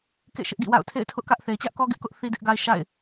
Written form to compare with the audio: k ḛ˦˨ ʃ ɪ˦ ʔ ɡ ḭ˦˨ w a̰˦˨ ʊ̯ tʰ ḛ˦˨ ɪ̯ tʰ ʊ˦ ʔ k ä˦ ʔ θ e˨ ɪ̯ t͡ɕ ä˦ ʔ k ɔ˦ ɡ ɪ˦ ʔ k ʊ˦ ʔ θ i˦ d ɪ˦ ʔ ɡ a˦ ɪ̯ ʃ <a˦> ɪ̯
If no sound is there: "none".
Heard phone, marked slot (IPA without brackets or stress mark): a̰˦˨